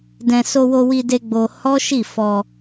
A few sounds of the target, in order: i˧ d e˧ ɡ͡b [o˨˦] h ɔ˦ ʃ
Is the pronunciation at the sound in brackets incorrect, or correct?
incorrect: o˧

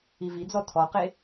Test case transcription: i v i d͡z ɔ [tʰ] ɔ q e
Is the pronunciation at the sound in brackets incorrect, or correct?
correct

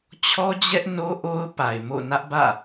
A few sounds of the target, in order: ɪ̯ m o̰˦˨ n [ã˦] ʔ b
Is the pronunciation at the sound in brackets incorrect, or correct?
incorrect: ä˦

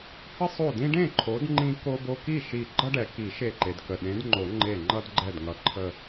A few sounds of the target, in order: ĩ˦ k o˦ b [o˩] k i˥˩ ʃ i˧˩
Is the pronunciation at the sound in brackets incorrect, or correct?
incorrect: o˦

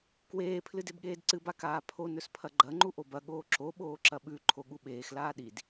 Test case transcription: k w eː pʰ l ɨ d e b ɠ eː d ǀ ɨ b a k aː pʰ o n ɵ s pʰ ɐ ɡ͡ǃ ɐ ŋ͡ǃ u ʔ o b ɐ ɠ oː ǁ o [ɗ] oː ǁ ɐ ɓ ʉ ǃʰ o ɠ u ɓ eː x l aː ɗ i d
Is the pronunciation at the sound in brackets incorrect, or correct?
incorrect: ɓ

